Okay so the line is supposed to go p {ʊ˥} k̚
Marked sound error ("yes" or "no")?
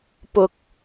yes